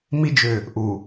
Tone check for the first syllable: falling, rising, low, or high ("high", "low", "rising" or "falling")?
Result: high